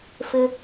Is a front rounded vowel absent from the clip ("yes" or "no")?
yes